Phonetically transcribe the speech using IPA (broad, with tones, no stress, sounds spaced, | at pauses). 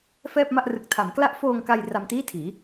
f ɛː˥˩ p̚ m a˥˩ ʔ r ɯ˨˩ k̚ tʰ a˩˦ m k l a˦˥ ʔ f oː˧ ŋ k a˧ j r a˧ m t iː˥˩ tʰ iː˩˦